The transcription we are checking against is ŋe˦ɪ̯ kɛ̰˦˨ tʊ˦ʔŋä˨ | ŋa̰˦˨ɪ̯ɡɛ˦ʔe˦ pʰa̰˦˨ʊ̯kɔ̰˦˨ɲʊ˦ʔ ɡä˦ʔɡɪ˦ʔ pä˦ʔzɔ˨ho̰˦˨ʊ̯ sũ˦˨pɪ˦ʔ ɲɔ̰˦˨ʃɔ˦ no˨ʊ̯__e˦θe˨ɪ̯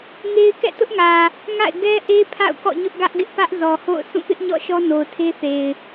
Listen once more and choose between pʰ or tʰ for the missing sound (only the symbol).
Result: tʰ